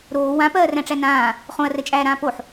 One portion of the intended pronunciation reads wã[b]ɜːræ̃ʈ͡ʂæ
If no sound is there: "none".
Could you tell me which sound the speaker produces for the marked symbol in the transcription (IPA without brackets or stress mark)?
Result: p